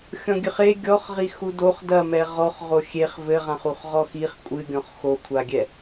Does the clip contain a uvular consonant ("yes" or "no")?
yes